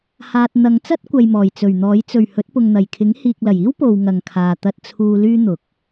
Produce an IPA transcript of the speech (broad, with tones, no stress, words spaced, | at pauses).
haː˨t̚ n̪ɐ˨˧ŋt͡sɐ˥t̚ kʷɐ˨jmɔː˨˩j t͡sɵ˨˩ɥn̪ɔː˨˥j t͡sɵ˨˩ɥ hɵ˨˥t̚pʊ˨ŋn̪ɐ˨˩jkʰɪ˨˥ŋ hiː˨k̚lɐ˨˩jiː˥w po˨w ŋɐ˨ŋkʰaː˨ t̪ɐ˧t̚t͡sʰuː˧ lyː˥n̪ʊ˨k̚